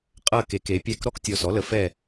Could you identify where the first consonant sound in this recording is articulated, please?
uvular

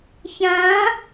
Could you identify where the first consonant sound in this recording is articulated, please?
palatal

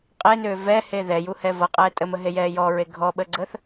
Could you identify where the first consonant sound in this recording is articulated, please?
uvular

